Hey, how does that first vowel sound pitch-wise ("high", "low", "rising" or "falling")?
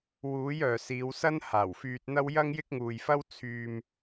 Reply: rising